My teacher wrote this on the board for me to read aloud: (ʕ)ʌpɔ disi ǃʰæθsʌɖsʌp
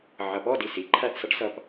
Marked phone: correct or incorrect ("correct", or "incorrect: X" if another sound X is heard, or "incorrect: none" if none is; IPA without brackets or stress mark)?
correct